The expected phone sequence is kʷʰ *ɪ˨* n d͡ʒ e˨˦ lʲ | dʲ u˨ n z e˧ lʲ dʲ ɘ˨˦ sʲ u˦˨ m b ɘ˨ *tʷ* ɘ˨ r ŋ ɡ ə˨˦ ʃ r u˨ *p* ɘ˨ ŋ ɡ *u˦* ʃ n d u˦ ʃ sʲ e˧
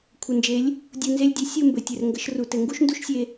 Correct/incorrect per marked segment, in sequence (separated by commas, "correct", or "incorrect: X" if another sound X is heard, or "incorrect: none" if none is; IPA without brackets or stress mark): incorrect: ə˨, incorrect: tʲ, incorrect: t, correct